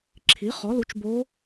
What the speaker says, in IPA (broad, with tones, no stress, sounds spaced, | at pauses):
ǁʰ i˩˥ χ ɔ˩˥ l u˩˥ t͡ʃ b o˧˥